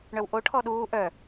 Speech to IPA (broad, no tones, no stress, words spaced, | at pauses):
ɳœwʔo ʈʰɔɗuː ʔœ